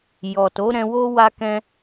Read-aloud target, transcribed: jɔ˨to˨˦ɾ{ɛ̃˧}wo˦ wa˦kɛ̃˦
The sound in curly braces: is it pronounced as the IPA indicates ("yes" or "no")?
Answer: yes